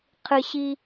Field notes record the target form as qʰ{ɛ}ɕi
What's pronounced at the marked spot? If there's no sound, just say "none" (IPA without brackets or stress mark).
ɨ